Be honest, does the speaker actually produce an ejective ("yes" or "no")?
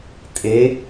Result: yes